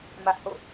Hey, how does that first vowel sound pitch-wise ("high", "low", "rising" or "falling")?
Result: high